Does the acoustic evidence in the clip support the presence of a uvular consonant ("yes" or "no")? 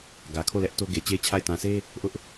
no